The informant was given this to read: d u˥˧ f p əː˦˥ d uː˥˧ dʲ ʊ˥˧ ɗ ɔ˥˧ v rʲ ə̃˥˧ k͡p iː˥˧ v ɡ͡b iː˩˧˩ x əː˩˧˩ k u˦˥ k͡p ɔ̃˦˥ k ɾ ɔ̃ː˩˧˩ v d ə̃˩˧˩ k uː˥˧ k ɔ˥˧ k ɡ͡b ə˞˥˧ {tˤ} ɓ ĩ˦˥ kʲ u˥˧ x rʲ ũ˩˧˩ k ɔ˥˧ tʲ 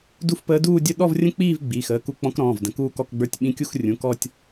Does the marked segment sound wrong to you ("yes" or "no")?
yes